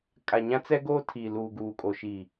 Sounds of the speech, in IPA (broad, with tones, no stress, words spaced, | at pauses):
kʼa˨ɲã˦t͡sɛ˦ ɡoː˦tʰi˨luː˨ ɡuː˨kʼo˨ʃi˨